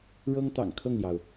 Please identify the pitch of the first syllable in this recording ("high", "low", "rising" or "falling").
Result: high